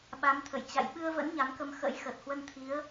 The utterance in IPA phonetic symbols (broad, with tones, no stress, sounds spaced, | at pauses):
ɓ a˨˦ m t̪ʰ ə̰˧˨ j t͡ɕ a̰˧˨ j ɓ ɨ˧ ə̯ v ə̰˧˥ n ɲ a˨˦ m k ə˧ m x ə̰˧˥ j x əː˨˩ t̚ h w ə˧ n t̪ʰ i˨˦ ə̯